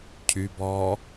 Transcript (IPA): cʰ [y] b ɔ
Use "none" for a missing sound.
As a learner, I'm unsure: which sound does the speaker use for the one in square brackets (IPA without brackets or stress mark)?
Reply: y